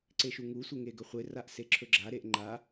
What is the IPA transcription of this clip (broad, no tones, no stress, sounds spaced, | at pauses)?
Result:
ǀ e ʃ u ŋ u sʷ e ŋ e ɡ ɵ χʷ e r a ʔ s e ǁʰ ɵ ɡ͡ǁ a ɾ e ʔ ŋ͡ǃ a